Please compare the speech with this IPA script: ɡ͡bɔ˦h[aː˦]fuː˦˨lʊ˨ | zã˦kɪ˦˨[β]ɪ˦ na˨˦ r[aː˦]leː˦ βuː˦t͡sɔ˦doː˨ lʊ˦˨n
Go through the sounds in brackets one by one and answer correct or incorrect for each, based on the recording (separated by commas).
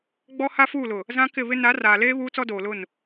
incorrect, correct, incorrect